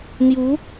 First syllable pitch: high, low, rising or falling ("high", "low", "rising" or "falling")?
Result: rising